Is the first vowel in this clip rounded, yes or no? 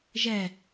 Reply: no